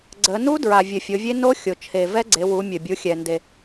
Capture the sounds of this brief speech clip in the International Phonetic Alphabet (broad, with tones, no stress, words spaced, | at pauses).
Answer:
ɡ͡ǀə˩˧ nu˦˥ dɹa˩vʲɘ˩ fʲo˩˧vʲe˦˥ no˦˥ xʲo˩ t͡ʃʰe˩ vɛ˦˥ɡ͡ǀe˩˧ wu˩˧ mʲɘ˩bʲu˩˧xʲɛ˩ nde˩